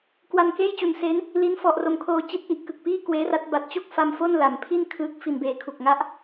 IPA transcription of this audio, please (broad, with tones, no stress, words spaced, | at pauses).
kwa˧nkeː˥˩jt͡ɕu˨˩nse˦˥n | li˦˥nfɔ˨˩ʔro˨˩mkʰoː˧ t͡ɕi˦˥t̚ʔi˨˩ʔ kɯ˨˩k̚piː˥˩kweː˦˥ra˦˥t̚ ba˨˩t̚t͡ɕo˥˩k̚fa˧m fo˥˩nla˩˦mpʰi˥˩n kʰɯː˦˥k̚ fi˨˩n beː˨˩kʰu˨˩k̚ŋa˦˥ʔ